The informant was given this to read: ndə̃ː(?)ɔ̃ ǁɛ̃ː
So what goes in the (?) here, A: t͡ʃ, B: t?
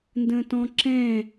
B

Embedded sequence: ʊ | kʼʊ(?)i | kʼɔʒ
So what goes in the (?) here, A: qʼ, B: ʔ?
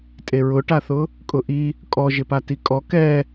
B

